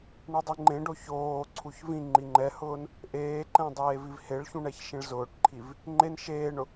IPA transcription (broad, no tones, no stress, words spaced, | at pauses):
ɳudˤiŋ͡ǃẽɖo çoːǀʰuç vĩ ŋ͡ǃiŋ͡ǃɛhʊːn | ʔeːǃɛ̃ dˤeːvivheɭçũ ɳɛçʃĩɭzʊːʈǃʰiv | ŋ͡ǃen ʃeːɳʊ